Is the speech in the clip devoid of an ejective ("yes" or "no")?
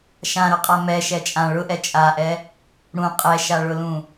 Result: no